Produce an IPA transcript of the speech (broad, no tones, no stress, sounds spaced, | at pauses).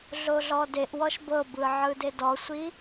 ɮ o ɮ ɔ d e ʔ w ɔ ʃ b ɤ b ɯ ʕ ɯ d e d ɔ sʷ i